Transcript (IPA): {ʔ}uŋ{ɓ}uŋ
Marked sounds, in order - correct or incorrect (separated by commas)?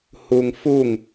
incorrect, incorrect